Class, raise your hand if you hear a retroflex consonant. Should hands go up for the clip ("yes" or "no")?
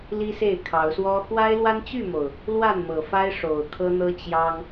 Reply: yes